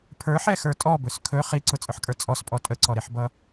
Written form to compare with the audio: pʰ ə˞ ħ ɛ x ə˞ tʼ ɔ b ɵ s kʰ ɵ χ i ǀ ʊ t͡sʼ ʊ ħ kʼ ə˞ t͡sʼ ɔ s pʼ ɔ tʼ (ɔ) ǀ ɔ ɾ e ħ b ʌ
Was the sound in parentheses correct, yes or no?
no